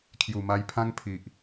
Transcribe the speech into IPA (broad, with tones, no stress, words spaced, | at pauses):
kʰju˨˩ma˧jpʰã˦ŋ pʰi˨ʔ